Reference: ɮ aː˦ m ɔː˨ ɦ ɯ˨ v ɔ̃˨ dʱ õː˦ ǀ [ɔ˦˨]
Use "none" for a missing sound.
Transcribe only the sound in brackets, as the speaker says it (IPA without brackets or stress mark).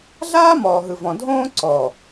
ɔ˨